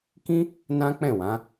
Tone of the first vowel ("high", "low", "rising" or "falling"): high